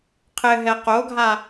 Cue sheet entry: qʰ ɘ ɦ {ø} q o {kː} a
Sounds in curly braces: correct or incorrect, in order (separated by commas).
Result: incorrect, incorrect